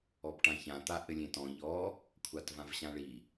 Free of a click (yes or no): yes